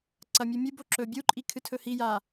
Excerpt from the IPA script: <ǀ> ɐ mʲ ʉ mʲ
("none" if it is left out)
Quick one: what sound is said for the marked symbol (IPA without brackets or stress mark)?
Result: ǀ